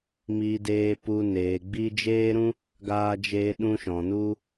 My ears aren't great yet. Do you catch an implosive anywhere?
yes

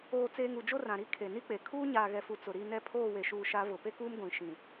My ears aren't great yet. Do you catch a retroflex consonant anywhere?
no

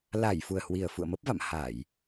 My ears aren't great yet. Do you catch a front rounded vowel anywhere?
no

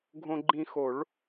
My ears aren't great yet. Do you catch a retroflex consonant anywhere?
yes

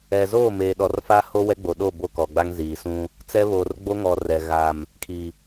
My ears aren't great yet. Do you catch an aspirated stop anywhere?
yes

